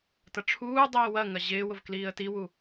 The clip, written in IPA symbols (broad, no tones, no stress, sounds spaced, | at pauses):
t ɐ ʈ͡ʂʰ uː dˤ iː w ɐ ŋ ɐ ʑ ɪː w ʊ v k l iː ə̯ t i w u